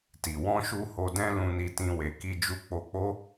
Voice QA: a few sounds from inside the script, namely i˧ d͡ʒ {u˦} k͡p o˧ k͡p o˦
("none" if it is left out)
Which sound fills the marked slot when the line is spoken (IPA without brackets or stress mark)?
u˧